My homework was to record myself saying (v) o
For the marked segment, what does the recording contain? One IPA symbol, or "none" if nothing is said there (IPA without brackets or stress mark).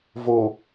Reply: v